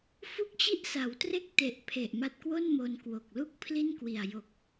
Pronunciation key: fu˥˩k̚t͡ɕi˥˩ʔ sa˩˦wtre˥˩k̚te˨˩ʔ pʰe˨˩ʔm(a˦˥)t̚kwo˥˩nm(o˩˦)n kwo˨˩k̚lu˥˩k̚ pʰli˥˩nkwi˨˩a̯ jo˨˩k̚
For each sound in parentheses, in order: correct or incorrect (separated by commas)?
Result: correct, incorrect